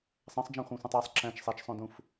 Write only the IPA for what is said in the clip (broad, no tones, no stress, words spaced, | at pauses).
sˤæ̃sˤd͡ʒæ̃χʷæ̃sʷæ̃tˤ ɑsˤ ǁæ̃t͡ʃ sˤæt͡ʃsˤõdũf